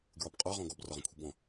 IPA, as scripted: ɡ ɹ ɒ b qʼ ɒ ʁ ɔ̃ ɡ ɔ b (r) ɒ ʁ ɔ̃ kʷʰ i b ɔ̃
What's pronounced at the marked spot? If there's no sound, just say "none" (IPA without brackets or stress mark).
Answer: r